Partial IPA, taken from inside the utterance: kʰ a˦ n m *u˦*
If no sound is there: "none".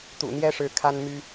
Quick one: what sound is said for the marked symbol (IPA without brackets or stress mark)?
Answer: y˦